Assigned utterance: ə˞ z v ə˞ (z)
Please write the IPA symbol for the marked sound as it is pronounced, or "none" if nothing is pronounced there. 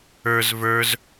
z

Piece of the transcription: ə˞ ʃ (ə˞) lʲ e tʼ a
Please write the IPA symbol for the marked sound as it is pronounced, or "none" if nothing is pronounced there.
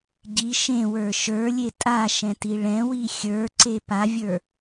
ə˞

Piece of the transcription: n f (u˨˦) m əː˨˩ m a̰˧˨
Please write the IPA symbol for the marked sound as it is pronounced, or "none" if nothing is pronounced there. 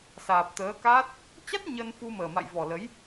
u˧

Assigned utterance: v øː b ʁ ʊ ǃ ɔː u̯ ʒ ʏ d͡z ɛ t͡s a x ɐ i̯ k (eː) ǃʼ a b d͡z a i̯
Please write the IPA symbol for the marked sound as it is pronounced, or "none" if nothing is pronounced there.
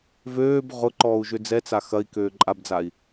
øː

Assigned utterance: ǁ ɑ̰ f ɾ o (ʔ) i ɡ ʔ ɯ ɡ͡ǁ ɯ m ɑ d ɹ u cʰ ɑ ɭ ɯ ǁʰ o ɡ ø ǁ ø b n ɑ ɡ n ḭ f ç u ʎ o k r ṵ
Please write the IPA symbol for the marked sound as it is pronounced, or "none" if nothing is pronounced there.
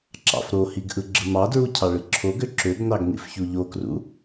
h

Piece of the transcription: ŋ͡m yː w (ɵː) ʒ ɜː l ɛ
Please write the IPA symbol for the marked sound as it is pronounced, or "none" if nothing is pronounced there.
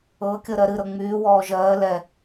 ɔː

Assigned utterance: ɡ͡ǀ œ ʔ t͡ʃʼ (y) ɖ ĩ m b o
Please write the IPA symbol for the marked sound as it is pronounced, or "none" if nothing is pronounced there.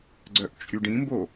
y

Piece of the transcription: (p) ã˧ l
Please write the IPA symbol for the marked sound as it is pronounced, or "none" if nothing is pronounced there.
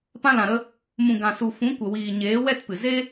p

